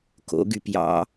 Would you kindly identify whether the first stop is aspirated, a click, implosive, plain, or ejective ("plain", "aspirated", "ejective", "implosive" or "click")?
plain